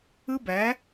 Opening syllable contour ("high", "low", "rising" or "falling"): high